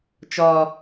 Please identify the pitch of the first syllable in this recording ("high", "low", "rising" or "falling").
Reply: low